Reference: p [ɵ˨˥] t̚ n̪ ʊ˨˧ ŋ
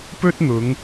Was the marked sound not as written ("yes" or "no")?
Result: yes